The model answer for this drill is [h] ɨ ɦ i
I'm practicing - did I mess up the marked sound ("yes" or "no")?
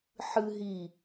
yes